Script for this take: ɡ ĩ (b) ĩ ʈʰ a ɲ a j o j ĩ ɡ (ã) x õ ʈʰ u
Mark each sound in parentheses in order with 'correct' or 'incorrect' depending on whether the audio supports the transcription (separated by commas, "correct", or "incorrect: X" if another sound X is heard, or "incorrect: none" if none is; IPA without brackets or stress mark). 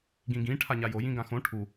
incorrect: ɡ, correct